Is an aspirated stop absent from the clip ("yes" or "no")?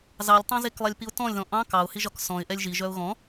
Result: yes